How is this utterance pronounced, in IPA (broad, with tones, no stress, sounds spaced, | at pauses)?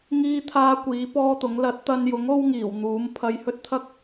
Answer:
ŋ iː˧ t̪ʰ aː˧ kʷ iː˨˥ p ɔː˥ t̪ ʊ˨˥ ŋ l ɐ˨˥ t̚ t̪ ɐ˧ n j ʊ˨˥ ŋ o˥ w ŋ iː˨˩ w n̪ uː˨˥ m pʰ ɐ˧ j h ɵ˥ t̚ t̪ʰ ɐ˥ k̚